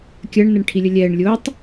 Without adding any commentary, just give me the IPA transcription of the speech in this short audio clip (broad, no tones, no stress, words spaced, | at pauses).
kʲɜɳ nɛɳʈʰilʲəlʲɛːɳ lʲʊːtˤ